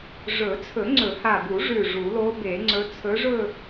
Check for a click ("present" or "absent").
present